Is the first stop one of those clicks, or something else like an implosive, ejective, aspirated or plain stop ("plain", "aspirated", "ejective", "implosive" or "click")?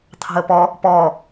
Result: aspirated